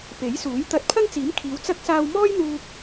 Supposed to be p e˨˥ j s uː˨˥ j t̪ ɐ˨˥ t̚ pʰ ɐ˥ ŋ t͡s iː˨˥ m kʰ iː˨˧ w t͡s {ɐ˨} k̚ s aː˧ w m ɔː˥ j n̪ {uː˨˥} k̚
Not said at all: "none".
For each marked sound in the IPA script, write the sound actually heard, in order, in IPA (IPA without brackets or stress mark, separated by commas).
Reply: ɐ˥, uː˧